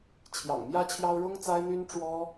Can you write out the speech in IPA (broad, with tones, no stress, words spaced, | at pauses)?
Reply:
t͡ɕʰjɑ̰˨˩ŋmjä˥t͡ɕʰjɑ˥ʊ̯ ɻʊ˥ŋt͡sa˥ɪ̯n̪y˥n ʈ͡ʂwɔ˥